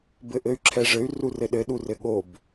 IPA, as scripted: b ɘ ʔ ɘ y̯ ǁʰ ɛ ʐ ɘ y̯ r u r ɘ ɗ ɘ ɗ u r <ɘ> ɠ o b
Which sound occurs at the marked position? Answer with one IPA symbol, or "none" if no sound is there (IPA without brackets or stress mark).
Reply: ɘ